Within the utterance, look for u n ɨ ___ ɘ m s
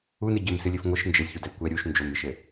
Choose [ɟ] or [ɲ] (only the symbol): ɟ